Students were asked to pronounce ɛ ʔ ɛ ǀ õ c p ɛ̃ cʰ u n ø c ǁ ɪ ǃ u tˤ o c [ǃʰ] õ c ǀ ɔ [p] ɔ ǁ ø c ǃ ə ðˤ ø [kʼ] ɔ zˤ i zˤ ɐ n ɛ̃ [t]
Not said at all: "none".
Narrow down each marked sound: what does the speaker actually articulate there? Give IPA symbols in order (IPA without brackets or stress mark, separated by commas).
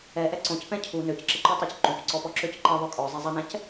ǃ, p, kʼ, c